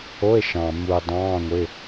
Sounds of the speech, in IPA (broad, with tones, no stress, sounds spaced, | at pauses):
o˧˥˧ e̯ ʃ ɑ̃ː˨ m uː˨ dˤ ɑ̃ː˧˥˧ ŋʷ ɪː˧˥˧